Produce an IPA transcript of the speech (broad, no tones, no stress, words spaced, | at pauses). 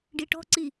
ɖiʈɔ̤ ǀi